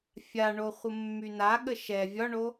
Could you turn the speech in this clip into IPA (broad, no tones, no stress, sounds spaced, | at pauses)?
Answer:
fʲ a ɳ o χʷ ə mː y n a ɠ ə ʃ ɛ vʲ ɒ ɳ o